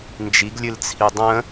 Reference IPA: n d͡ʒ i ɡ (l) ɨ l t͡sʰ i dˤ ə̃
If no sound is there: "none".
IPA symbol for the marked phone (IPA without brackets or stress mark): lʲ